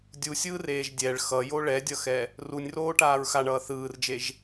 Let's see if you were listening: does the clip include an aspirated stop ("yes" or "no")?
no